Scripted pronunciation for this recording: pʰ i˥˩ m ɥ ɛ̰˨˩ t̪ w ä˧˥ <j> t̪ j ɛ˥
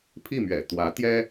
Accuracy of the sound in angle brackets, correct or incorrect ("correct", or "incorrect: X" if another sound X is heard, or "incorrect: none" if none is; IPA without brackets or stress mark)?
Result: incorrect: none